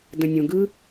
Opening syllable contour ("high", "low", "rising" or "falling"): low